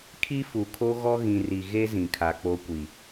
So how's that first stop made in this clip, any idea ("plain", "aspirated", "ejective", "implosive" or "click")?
aspirated